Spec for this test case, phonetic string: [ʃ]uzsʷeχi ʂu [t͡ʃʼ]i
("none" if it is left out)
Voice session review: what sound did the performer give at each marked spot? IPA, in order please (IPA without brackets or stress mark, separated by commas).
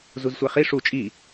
z, t͡ʃʼ